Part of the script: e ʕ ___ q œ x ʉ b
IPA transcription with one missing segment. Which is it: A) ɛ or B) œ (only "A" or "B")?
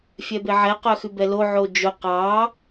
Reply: A